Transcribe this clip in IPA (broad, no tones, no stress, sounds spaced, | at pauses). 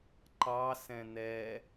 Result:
ǃ ɑ s ɛ̃ n̪ ɛ